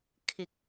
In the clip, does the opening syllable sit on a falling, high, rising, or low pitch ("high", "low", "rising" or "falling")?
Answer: low